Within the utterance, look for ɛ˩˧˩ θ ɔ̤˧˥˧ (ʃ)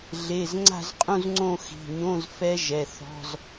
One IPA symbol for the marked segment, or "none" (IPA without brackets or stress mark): z